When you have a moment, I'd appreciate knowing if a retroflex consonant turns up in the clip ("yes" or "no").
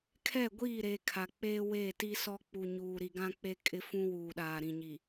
no